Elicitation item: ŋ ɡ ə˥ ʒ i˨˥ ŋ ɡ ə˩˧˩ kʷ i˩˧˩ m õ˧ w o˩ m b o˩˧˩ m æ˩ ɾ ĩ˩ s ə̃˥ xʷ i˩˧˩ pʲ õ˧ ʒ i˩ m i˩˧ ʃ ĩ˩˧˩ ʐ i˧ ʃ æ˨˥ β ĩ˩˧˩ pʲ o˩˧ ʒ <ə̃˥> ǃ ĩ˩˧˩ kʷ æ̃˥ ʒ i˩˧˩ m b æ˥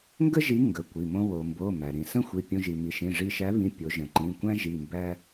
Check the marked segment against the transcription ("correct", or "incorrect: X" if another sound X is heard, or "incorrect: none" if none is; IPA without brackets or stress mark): incorrect: ə̃˩